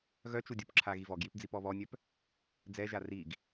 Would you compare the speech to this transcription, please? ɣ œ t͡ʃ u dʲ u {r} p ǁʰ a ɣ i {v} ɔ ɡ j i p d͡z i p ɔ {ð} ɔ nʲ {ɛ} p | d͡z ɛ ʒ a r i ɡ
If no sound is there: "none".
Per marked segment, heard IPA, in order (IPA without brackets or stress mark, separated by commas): none, v, β, œ